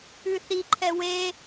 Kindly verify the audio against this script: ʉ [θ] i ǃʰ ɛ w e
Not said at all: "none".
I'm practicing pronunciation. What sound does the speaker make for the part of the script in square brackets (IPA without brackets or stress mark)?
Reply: θ